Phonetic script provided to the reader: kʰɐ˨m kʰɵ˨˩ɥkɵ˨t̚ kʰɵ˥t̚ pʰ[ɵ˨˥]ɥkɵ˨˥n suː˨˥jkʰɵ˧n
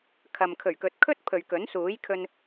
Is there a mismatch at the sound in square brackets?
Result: yes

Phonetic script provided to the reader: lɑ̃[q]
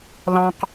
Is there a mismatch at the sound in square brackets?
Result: no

